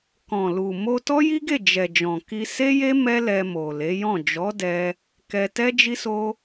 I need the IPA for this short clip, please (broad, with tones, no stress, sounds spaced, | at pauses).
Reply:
k ɔ̃˨ l u˨ m o˧ t ɔ˦ j i˦ ɡ e˦˨ d͡ʒ ɛ˨ d͡ʒ ɔ̃˨ k i˧ s e˦ j e˦ m ɛ˦ l ɛ˧ m o˨ l e˨˦ j ɔ̃˦˨ d͡ʒ ɔ˨˦ d ɛ˧ | k ɛ˧ t ɛ˦ d͡ʒ i˦ s o˦